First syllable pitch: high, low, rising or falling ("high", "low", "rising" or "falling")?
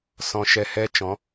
high